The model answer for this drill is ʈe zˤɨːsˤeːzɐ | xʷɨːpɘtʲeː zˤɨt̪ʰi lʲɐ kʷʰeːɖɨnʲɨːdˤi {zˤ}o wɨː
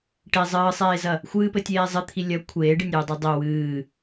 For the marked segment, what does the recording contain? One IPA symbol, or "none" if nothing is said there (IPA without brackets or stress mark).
dˤ